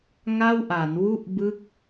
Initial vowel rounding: unrounded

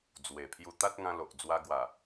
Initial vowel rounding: unrounded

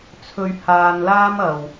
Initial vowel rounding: rounded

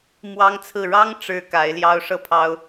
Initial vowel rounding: unrounded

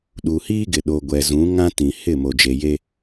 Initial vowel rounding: rounded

